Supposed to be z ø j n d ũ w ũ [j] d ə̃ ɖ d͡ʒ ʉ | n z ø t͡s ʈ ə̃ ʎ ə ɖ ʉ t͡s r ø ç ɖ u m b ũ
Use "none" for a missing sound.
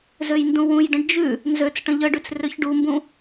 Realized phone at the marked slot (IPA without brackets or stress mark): j